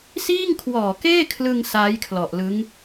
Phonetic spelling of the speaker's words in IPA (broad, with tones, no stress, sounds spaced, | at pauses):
s iː˥˩ ŋ kʰ w ɔː˨˩ k eː˥˩ kʰ l ɯ˧ ŋ s aː˦˥ j kʰ l ɔ˨˩ ʔ l ɯ˦˥ ŋ